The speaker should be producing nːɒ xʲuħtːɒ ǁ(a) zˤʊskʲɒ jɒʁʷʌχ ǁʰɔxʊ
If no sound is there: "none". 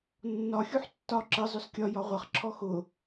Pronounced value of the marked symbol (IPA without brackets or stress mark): ə